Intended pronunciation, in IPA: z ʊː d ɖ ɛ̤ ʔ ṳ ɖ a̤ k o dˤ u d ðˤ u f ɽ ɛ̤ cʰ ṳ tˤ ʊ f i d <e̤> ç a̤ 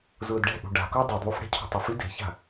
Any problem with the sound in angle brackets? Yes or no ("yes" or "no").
no